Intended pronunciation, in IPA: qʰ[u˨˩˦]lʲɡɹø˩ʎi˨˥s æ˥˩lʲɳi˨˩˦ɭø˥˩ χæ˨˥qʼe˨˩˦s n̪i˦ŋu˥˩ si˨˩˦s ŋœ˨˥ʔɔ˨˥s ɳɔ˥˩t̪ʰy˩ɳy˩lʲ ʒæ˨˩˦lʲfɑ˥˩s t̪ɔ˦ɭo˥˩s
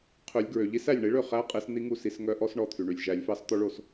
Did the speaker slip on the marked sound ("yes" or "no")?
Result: yes